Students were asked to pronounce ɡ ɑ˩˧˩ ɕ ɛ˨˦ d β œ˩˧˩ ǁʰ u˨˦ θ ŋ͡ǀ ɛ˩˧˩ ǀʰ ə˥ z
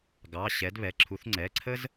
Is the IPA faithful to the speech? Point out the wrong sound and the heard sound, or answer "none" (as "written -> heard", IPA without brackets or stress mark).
œ˩˧˩ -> ɛ˩˧˩